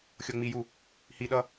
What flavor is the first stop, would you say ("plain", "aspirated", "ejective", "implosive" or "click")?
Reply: implosive